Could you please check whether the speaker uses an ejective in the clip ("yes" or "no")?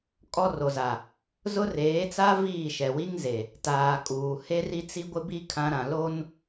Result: yes